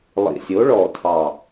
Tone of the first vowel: low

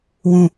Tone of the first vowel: low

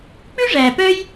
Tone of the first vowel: high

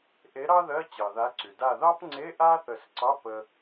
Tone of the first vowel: rising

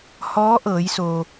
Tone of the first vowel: rising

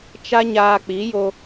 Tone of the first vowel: high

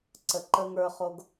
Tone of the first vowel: low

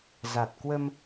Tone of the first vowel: low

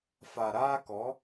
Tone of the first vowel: low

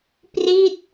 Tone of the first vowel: falling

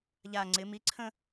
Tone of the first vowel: low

